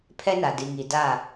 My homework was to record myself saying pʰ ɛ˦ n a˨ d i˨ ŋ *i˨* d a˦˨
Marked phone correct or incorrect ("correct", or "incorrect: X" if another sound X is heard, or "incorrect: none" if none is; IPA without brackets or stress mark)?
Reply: correct